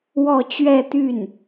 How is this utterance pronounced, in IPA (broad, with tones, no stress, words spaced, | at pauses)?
wɔ˥˧ t͡ɕɥɛ˥˧t̪y˥˩n